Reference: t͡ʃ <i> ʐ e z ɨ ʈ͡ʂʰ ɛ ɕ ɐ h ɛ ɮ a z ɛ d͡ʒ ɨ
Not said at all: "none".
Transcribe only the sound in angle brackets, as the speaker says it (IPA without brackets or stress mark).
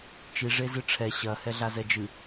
i